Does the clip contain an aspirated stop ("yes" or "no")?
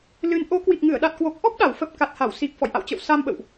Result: no